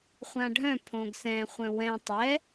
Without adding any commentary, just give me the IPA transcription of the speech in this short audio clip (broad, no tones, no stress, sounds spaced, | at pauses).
χʷ ã ɖʱ œ̃ pʰ õ ɡ s ɛ̃ χʷ œ̃ w ɛ̃ tˤ ɛ